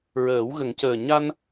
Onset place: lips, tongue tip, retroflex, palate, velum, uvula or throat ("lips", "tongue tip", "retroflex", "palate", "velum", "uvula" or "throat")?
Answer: tongue tip